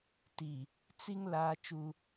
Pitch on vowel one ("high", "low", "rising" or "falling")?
low